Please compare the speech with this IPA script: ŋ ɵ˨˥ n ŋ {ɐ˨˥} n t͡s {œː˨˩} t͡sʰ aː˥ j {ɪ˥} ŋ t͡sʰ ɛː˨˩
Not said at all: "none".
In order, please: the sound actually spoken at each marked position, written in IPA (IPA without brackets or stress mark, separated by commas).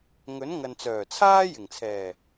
ɐ˨, œː˨˩, ɪ˨˩